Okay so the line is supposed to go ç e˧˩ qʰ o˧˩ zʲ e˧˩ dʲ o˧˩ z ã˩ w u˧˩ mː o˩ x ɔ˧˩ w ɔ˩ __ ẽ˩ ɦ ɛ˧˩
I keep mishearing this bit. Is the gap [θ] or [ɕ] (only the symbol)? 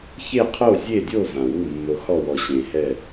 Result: ɕ